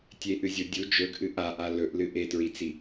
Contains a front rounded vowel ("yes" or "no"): no